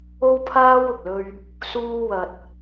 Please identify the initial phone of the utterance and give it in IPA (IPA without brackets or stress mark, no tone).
o